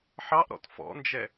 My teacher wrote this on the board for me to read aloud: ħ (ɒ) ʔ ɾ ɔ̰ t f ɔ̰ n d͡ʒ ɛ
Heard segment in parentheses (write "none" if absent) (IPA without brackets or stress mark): ɑ